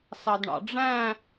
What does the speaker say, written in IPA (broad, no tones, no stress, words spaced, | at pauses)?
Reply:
sɑdɳɑ̰ɖ͡ʐæ̃